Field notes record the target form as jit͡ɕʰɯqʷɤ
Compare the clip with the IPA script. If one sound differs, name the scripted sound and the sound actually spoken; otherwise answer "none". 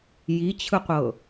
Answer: none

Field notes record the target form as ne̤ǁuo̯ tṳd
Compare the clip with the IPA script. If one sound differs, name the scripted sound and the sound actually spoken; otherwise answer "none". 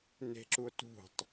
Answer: d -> tˤ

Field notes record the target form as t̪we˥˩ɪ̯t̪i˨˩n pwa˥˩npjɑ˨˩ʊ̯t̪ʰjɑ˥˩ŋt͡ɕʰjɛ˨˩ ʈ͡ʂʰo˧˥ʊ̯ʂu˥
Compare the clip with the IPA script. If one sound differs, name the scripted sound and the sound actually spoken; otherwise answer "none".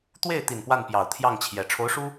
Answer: none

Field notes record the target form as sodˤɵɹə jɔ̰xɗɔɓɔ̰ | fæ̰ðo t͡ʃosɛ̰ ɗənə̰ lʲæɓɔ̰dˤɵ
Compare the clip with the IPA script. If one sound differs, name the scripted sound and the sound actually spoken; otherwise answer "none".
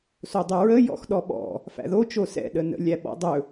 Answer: none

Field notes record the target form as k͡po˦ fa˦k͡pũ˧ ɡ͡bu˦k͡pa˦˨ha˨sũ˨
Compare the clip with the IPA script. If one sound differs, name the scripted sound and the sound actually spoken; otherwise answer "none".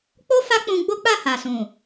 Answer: u˦ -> o˦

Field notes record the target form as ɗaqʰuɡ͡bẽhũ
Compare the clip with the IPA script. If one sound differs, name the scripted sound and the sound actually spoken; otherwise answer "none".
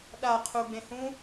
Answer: none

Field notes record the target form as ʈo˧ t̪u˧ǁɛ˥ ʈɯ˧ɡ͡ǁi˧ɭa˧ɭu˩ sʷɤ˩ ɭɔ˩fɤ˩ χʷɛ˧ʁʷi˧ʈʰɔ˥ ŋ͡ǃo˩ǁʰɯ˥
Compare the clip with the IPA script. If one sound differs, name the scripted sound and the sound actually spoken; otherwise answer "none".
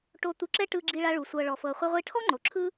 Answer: none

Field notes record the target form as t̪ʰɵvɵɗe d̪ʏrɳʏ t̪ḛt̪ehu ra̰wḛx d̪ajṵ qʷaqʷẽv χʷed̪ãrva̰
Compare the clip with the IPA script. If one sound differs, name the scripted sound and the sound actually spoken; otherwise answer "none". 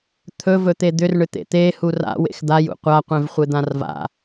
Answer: ɗ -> t̪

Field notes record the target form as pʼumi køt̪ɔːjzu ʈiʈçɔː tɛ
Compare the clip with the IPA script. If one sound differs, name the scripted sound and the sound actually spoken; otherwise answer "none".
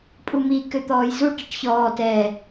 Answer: none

